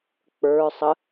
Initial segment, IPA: k͡p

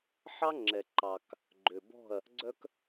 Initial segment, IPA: ħ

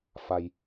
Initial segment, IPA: f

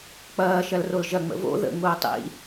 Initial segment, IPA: k͡p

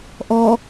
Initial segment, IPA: ʔ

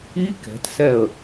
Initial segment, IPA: i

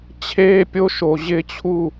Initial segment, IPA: t͡ɕʰ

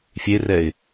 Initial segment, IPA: fʲ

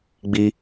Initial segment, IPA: ɡ͡b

